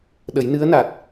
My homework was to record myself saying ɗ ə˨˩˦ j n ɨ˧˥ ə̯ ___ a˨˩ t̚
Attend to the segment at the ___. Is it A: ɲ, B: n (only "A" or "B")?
B